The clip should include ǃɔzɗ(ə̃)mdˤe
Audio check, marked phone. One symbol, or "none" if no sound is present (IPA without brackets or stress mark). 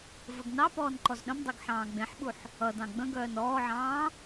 ə̃